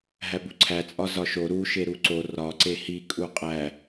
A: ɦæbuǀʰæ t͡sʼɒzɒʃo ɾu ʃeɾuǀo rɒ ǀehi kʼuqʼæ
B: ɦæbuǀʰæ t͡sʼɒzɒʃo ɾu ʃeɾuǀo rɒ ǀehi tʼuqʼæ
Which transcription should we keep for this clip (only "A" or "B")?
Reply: A